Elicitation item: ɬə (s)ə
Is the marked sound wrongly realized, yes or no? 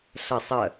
yes